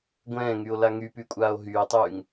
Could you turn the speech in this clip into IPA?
ɡʷɛ̃ːŋyo̯la ŋypykʷʼaːo̯ ɦyːtˤyːŋ

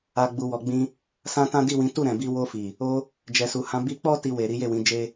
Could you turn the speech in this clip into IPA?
a˨ ɡ͡bu˨wɔ˨ɡ͡bĩ˧ | sã˦tã˦ di˦˨wĩ˨˦ tu˦˨ɾɛ̃˨bi˧ wo˧fi˨ | o˧ | d͡ʒɛ˨su˨hã˨˦ bi˧k͡pɔ˦ ti˧we˨ ɾi˨˦je˦˨wĩ˨˦d͡ʒe˦

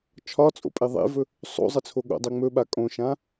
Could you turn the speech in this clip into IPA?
t͡ʃʰɒt͡sʼo̰ pʼeðˤḛvɵ | sˤo̰ zˤɘt͡sʰoɠo̰dˤe ŋ͡mɵɓa kʼõʃã

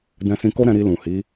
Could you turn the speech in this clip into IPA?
dɛ̃˧sĩ˧ko˦ɾɛ̃˧ ɾi˧lũ˨hi˨˦

